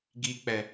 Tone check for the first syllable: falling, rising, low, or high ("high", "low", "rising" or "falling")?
low